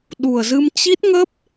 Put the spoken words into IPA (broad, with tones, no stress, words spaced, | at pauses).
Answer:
ɗu˨˩ə̯zɨ˧m t͡ɕi˦˥t̚ŋə˦˥p̚